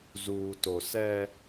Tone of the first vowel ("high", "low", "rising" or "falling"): low